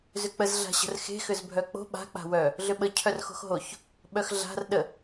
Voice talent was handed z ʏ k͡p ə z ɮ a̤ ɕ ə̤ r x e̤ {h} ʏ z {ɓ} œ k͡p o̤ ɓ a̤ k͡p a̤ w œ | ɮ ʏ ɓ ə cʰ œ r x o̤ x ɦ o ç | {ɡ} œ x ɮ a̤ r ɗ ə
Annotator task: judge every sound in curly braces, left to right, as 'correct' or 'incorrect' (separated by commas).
incorrect, incorrect, incorrect